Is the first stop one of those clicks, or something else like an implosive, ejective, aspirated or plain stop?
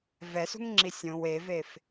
click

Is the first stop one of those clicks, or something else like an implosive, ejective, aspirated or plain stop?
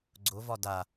click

